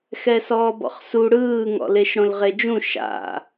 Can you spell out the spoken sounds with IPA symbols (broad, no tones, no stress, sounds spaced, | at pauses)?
x ɛ s ɔː b ɔ̰ χ s u ɽ ɯː ŋ ɔ̰ l e ʃ ɽ õ l ʁ e d͡ʒ ũ ʃ a̰